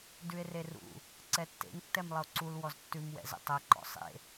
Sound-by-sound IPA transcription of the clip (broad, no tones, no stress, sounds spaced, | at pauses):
d ʉ e̯ r e r ṵ | ǀ ɛ tː ḛ ŋ tː ɛ m lˠ ə o̯ ǀ u l w ɔ z tː ʉ m w ɛ̰ z ə̰ tˤ ɛ ǃ ɔ̰ sˤ ḛ